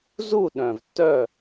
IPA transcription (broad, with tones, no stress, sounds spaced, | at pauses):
z u˦˨ ɗ œ̃˨ v tː œ˦˨